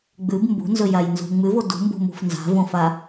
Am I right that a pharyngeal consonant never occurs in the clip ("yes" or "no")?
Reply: yes